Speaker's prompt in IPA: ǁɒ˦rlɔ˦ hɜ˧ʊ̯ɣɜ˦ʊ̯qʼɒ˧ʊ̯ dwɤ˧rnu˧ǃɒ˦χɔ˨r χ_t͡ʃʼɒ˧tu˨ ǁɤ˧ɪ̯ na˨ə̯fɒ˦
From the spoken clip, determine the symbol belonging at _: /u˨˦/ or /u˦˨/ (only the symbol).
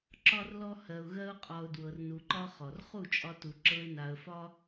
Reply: u˦˨